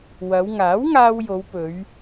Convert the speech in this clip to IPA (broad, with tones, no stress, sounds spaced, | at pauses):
w ɐ˨˧ w ŋ aː˨˥ w ŋ aː˧ w j o˨˧ w p ɵ˨˧ ɥ